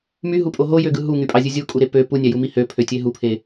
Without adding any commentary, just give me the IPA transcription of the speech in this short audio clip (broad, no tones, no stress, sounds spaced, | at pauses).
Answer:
m y ɦ u pʼ o ɦ o j ø ɡ ɯ ɦ u ŋ y pʼ ɑ zʲ ɯ zʲ u kʼ u ɾ e p ø p u nʲ æ j u m i h ø pʰ ø tʲ e ɦ u pʰ e